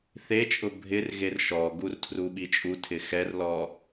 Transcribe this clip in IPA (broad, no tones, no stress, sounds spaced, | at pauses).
θ e t͡ʃʼ ʊ bʱ ɪ r ɣ e r ʃ ɔ ɡ u r tʰ r u ɓ i t͡ʃʼ u tʰ ɪ x ɛ r l ɔ